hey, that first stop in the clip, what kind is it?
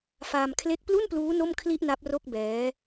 aspirated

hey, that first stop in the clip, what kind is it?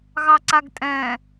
click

